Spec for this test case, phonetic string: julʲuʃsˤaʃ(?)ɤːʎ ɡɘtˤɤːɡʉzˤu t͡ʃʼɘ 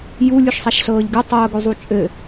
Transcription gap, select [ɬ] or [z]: ɬ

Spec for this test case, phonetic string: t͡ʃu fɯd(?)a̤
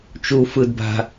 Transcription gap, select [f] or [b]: b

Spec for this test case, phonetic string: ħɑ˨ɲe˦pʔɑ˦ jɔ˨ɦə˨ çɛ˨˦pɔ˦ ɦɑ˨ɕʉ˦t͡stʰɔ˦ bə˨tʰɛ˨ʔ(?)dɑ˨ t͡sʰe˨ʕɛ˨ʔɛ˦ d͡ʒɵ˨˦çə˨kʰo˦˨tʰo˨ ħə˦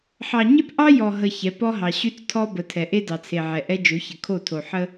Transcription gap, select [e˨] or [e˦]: e˦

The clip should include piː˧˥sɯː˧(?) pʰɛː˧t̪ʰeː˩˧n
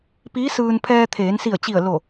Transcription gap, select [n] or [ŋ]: n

